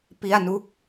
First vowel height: high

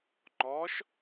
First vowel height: mid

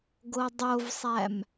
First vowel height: mid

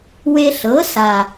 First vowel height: mid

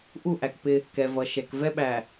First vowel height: high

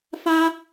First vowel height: low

